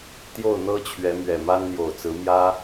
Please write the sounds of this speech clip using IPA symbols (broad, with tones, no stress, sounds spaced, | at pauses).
t̪ j o˥˩ ʊ̯ n̪ ɤ˥ t͡ɕʰ ɥ ɛ˧˥ m ɥ ɛ˨˩ m a˥ n n̪ j o˨˩ ʊ̯ t͡s ɹ̩˧˥ m j ä˥